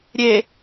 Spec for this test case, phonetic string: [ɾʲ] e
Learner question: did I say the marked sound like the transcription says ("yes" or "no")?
yes